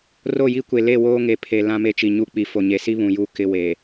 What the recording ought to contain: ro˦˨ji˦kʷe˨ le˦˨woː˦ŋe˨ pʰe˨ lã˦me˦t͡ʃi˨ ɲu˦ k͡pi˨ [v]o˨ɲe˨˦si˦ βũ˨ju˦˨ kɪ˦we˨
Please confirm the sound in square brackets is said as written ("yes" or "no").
no